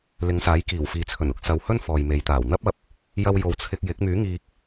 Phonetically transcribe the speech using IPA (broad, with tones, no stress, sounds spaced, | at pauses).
l ɪ˨˧ ŋ s aː˨˥ j k iː˨˩ w f iː˨ t͡sʰ ɵ˨˩ n ʊ˨ k̚ s ɐ˨ w h ɵ˥ n f ɔː˨ j m e˨˧ j t̪ aː˨˩ w n̪ ɐ˥ p̚ ɐ˨˥ p̚ | j ɐ˧ w j o˨ w t͡sʰ ɪ˧ k̚ j ɪ˨˥ k̚ m yː˨˥ ŋ iː˧ k̚